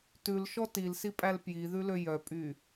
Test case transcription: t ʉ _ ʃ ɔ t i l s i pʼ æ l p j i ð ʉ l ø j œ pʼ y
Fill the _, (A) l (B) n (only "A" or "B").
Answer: A